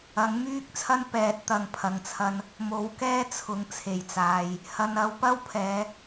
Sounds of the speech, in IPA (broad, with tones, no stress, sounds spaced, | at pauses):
ɐ˨˥ ŋ m yː˥ k̚ t͡sʰ ɐ˥ n p ɛː˧ t̚ t̪ ɐ˧ ŋ pʰ ɐ˧ ŋ t͡sʰ ɐ˥ n | m o˨˥ w k ɛː˥ t͡sʰ ʊ˨˧ ŋ t͡sʰ e˨˩ j t͡s aː˨ j | h ɐ˨ n ɐ˨˧ w p ɐ˥ w pʰ ɛː˨˧